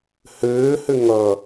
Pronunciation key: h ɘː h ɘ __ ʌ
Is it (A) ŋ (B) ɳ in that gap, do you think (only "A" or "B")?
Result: A